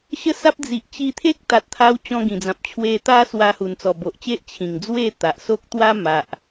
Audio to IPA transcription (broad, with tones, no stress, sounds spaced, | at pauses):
ɕ ə˦ s a˦ p̚ d͡z i˨ ʔ t͡ɕ i˧ t̪ʰ e˦ k̚ t̪ a˨ t̚ t̪ʰ a˧ w t͡ɕ ɔ̃˧ ɡ ĩ˨˩ d͡z ã˨ p̚ t͡ɕʰ w e˧ t̪ a˦ s w a˧ h u˨˩ n t͡s ɔ˨˩ b o˨ ʔ t͡ɕ e˦ ʔ t͡ɕʰ ĩ˨˩ ŋ d͡z w e˥˧ t̪ a˨ ʔ s o˦ k̚ t̪ w a˦ m a˨ ʔ